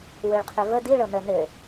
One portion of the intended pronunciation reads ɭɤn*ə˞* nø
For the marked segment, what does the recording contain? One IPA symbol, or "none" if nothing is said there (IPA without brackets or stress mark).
ə